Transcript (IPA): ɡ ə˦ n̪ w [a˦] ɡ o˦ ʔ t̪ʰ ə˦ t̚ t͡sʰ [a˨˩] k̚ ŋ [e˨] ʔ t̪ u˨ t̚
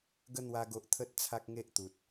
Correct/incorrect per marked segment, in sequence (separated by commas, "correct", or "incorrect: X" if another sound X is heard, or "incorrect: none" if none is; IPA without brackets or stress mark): correct, incorrect: a˦, incorrect: e˦